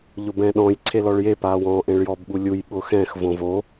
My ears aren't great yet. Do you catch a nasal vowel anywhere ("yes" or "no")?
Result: yes